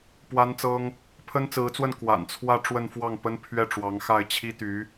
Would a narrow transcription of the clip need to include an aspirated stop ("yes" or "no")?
yes